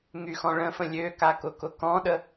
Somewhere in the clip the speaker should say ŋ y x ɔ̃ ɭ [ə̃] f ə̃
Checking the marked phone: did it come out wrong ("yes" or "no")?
no